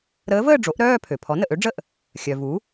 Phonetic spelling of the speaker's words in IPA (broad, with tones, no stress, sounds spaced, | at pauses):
ɾ əː˧˥ v əː˥˧ ɖ͡ʐ o˩˥ ʔ ɾ œː˥˧ pʰ ø˩ pʰ ɔ˩˥ n ə˩ ʔ ø˧˥ ɖ͡ʐ ə˥˧ ʔ | xʲ œ˩ v u˩˥